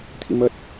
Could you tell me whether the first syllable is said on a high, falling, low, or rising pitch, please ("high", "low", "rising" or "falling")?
rising